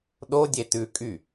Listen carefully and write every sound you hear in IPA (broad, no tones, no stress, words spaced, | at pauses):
ɗodʲe tʉ kʼy